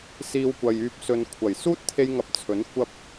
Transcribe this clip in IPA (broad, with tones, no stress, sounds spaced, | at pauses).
s iː˧ w kʷ ɐ˨ j yː˧ p̚ s ɵ˧ n kʷʰ ɐ˨˩ j s uː˥ t̚ t̪ʰ e˧ j ŋ ɐ˨˥ p̚ t͡sʰ ɵ˨˥ n kʷ ɐ˥ p̚